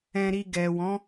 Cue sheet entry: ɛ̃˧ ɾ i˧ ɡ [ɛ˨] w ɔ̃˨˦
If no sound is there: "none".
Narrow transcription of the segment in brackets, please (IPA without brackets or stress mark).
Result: ɛ˨